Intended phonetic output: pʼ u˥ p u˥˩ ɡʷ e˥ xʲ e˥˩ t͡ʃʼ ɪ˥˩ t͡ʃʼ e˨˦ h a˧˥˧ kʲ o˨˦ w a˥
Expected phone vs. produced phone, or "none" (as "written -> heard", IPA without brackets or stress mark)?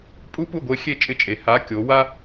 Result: none